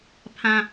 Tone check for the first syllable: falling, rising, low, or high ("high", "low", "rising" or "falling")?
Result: low